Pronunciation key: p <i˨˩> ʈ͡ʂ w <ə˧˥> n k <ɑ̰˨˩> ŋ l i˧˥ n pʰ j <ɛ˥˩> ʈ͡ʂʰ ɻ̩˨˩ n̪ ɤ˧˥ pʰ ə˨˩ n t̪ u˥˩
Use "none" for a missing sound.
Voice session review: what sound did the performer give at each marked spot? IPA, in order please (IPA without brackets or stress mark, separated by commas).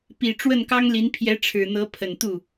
i˨˩, ə˥˩, ɑ˥, ɛ˧˥